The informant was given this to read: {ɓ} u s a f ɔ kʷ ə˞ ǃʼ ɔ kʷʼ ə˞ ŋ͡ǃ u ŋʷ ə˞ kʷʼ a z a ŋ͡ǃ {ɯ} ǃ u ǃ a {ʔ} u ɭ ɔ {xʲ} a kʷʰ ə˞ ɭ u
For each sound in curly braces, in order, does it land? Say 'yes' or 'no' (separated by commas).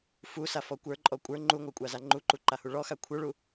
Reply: no, no, no, no